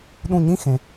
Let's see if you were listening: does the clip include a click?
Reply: no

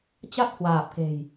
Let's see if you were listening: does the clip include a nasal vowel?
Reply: no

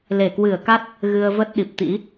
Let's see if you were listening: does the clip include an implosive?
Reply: yes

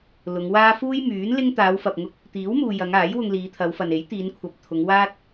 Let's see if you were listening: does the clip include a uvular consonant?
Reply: no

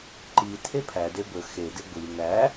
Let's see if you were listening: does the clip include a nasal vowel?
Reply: no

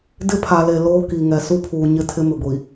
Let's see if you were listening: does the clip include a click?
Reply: no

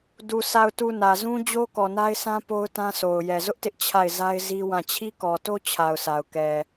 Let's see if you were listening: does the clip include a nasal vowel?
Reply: yes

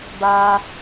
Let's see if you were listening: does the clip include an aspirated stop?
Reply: no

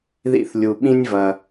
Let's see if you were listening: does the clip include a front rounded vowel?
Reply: no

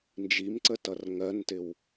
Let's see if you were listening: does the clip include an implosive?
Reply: no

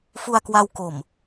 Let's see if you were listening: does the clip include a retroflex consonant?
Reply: no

